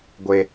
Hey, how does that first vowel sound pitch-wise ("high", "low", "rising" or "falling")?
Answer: high